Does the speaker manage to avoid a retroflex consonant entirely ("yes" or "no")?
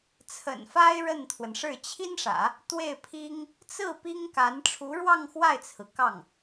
no